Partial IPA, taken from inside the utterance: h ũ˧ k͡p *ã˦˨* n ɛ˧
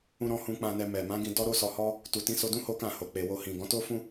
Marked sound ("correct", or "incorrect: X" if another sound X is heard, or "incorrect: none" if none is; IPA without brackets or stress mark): incorrect: ã˧